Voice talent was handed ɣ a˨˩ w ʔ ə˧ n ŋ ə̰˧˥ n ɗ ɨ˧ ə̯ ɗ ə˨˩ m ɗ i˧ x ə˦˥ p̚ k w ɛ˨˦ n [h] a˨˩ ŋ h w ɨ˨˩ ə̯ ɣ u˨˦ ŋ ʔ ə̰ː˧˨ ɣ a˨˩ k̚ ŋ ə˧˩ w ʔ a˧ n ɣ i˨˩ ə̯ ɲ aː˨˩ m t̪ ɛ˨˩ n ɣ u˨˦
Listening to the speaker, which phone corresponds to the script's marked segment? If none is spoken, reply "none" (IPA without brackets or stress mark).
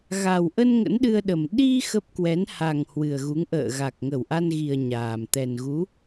h